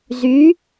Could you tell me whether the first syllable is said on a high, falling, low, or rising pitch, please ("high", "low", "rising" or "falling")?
rising